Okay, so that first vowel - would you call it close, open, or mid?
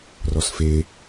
mid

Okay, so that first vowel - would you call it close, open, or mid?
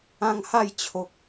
open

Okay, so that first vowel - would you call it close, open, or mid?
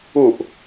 close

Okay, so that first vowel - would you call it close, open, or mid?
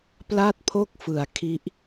open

